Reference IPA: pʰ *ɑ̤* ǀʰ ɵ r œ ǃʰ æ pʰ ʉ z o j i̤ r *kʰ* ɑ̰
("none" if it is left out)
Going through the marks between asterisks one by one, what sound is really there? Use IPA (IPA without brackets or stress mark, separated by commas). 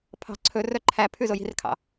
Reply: ɑ̤, kʰ